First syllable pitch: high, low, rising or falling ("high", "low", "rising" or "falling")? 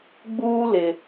high